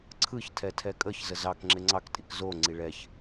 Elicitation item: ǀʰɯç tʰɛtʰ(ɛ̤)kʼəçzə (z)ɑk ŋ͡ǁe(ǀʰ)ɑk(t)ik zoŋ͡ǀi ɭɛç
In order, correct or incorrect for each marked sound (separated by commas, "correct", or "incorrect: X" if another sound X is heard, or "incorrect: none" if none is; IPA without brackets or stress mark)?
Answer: incorrect: ɛ, correct, incorrect: ŋ͡ǀ, incorrect: tʼ